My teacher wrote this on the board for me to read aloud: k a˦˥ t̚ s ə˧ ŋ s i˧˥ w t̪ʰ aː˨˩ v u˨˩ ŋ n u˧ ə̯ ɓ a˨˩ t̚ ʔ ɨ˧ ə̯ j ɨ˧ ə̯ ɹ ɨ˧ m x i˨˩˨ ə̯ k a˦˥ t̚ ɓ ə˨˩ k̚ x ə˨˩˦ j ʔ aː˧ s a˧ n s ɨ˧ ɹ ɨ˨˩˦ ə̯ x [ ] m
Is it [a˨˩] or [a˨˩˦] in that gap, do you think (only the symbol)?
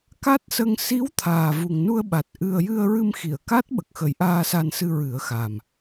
a˨˩